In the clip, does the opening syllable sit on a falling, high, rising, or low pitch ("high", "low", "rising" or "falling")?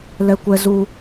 high